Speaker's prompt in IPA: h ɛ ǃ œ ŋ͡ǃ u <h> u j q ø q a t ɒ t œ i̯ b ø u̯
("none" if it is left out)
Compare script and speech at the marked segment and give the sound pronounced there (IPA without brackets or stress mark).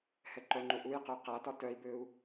ʔ